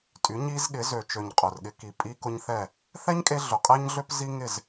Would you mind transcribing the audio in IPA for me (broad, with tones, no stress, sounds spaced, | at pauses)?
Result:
tʼ y˨˦ ɲ i˦ z ɠ ɪ˨˦ z ø˨ t͡ʃ ø˨ ɲ qʼ ʊ˨ r ɠ ɪ˧ k i˨ pʼ i˦ k ʊ˦ ɲ θ ɛ˦˨ | θ ɛ˦ ɲ kʼ e˧ ɮ ʊ˨ qʼ ɛ˦ ɲ ɮ ø˦ p z i˦ ŋ ɪ˦˨ z